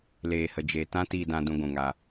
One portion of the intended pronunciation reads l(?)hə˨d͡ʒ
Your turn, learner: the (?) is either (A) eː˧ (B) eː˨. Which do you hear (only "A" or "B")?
B